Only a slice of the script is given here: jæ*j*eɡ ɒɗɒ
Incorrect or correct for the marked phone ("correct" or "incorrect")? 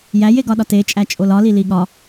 correct